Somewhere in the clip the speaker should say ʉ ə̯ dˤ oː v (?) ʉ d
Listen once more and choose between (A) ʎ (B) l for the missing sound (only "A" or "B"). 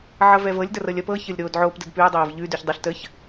A